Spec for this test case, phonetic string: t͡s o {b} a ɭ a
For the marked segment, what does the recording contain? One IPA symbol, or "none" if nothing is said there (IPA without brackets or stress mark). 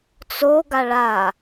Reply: ɡ